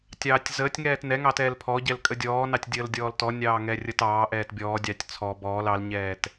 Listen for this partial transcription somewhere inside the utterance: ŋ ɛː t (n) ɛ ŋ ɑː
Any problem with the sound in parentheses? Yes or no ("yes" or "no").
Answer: no